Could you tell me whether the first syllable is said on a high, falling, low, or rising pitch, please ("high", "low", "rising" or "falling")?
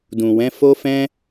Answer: low